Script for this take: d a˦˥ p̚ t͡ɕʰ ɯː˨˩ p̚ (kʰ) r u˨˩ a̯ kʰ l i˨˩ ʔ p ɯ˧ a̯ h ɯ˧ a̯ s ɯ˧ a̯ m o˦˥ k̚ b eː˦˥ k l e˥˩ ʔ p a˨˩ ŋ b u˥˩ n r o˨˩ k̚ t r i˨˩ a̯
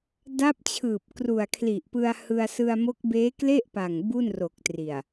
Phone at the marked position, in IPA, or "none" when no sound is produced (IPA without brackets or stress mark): k